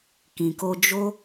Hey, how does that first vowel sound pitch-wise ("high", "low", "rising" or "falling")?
low